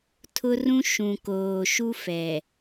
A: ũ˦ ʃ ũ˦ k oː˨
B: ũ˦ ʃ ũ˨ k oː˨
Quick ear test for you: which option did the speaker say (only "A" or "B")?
B